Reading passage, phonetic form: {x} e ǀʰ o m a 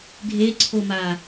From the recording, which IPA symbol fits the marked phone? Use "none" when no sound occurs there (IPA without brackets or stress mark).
ɡʱ